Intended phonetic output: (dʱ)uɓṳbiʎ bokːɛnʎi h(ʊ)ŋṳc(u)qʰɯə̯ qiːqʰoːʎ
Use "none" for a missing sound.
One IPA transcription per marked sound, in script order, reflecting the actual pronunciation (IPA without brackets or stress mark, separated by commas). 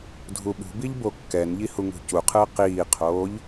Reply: dʱ, u, u